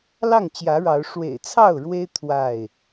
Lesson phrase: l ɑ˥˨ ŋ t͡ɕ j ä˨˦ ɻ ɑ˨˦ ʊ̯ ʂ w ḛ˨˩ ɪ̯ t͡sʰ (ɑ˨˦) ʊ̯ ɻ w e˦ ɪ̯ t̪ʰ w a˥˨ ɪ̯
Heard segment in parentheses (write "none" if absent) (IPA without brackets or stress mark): ɑ˥˨